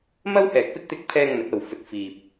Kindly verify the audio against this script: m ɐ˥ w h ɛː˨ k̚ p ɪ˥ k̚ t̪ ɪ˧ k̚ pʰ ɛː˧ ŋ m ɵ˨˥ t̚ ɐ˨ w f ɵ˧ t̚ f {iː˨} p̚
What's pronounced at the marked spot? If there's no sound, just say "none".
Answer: iː˨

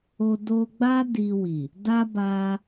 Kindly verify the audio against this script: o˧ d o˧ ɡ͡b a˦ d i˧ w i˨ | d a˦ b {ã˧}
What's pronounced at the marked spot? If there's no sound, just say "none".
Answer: a˧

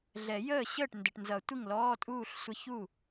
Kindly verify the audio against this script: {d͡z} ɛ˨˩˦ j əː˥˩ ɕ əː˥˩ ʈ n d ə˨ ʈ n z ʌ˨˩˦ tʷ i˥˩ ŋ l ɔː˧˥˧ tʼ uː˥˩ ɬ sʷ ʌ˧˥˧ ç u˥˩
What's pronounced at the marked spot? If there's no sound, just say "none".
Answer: ɮ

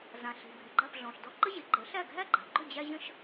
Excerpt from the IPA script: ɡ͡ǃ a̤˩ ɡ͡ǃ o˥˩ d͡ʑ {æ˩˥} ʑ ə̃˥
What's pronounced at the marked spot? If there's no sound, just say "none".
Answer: æ˥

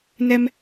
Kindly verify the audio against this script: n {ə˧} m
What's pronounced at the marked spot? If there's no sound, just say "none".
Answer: ɛ˧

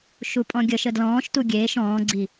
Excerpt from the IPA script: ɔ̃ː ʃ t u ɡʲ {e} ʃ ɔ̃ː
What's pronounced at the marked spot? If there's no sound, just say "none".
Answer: eː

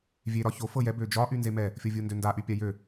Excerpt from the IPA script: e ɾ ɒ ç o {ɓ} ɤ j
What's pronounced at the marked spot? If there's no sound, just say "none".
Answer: f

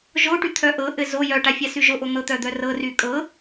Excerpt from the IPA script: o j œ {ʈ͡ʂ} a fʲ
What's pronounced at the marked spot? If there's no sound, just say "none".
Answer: ʈ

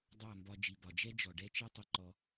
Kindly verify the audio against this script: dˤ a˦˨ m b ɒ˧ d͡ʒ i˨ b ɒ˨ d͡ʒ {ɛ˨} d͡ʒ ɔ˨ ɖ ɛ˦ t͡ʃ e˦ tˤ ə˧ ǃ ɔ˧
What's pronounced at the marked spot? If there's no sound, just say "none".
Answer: ɛ˦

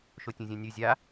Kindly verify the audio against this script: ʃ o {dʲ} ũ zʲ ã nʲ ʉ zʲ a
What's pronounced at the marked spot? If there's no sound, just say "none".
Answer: tʲ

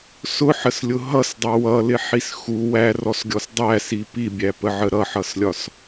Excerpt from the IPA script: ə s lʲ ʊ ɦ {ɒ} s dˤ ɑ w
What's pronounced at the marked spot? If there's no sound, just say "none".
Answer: ʌ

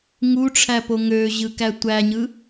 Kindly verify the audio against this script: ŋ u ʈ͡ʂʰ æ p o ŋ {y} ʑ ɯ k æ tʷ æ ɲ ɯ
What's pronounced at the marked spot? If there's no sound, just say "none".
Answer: ø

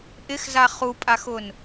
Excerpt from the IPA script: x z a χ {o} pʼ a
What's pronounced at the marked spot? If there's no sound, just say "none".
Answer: u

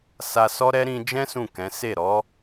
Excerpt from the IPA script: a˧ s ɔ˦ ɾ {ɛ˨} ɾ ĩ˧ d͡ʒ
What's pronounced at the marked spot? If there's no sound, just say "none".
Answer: ɛ˦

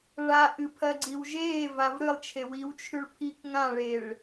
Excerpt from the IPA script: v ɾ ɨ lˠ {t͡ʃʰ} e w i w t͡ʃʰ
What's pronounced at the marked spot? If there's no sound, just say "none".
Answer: t͡ʃʰ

